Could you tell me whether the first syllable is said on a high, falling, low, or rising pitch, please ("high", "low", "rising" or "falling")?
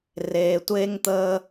low